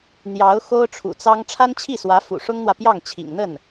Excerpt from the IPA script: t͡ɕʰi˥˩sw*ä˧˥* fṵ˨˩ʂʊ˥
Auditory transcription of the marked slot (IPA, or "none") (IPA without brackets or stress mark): ä˧˥